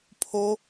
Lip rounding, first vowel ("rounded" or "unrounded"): rounded